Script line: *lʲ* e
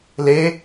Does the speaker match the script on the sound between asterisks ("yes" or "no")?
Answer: no